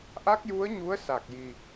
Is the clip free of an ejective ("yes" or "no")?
yes